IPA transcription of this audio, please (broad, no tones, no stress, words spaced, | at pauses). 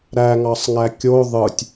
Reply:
ɾæŋɑsˤŋæ kʲo ðˤɯtʲ